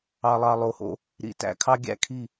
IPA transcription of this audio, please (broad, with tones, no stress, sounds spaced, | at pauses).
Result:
ɑ˨ lˠ ɑ˨ lˠ o˨ h o̰˦ | ɾ ḭ˨ t æ̰˨ kʰ ɑ˦ ɡʲ æ̰˦ kʰ i˦˨